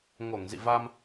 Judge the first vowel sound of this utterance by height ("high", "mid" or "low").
mid